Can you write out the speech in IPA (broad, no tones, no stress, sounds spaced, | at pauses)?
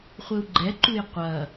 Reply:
χʷ ɘ u̯ ɡ͡ǃ ɛ ǃ u j qʷ ɐ